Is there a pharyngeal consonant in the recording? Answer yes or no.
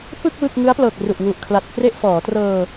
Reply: no